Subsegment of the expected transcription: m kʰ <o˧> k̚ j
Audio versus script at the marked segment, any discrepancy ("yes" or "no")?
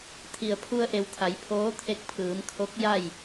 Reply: yes